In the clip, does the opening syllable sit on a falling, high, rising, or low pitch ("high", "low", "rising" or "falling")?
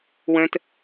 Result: high